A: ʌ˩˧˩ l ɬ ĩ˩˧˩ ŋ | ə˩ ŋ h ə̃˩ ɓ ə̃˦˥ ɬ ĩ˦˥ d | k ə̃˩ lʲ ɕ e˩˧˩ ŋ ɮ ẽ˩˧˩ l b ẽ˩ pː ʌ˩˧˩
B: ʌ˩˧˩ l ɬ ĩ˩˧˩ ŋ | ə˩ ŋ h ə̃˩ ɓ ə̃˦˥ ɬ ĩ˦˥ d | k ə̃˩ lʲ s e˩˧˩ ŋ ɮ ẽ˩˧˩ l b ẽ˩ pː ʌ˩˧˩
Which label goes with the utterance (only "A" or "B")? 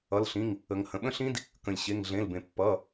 A